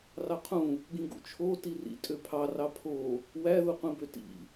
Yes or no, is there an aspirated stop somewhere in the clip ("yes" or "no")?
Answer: yes